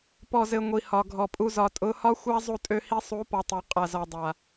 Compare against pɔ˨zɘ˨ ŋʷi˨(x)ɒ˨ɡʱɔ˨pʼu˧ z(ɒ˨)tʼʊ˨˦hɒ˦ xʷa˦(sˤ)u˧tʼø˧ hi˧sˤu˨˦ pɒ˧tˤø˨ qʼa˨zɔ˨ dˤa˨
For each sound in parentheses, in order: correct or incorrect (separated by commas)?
incorrect, correct, incorrect